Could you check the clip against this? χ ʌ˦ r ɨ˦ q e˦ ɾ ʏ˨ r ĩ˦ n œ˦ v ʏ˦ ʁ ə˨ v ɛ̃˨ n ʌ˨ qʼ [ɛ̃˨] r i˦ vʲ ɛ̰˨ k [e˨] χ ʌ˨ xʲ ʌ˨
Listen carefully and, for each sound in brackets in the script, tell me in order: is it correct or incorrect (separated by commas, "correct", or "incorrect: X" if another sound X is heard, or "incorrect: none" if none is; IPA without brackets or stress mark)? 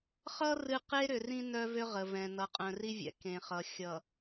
incorrect: œ̃˨, incorrect: ẽ˨